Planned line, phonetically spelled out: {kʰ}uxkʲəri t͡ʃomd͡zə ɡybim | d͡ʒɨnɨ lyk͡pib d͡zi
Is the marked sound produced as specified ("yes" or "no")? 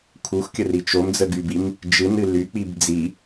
yes